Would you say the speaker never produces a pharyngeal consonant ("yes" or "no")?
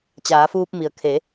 yes